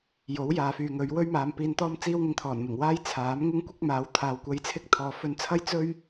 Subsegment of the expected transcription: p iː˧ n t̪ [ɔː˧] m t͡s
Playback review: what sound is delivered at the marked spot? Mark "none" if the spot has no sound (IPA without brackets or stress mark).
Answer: ɔː˥